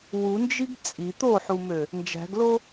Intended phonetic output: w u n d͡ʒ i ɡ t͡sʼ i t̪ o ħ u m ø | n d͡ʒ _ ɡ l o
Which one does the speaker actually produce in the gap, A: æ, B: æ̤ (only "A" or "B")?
B